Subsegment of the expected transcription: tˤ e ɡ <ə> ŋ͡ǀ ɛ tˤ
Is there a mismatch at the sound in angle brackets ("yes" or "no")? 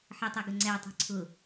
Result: no